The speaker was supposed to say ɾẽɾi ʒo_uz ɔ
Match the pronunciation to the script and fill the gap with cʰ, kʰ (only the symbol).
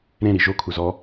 kʰ